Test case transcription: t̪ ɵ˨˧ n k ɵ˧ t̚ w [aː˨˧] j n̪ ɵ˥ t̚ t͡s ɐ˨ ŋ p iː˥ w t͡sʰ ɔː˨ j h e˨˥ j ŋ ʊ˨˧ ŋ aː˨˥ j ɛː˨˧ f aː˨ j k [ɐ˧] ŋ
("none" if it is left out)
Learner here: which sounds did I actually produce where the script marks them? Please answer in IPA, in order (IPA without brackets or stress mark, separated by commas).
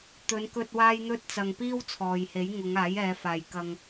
aː˥, ɐ˧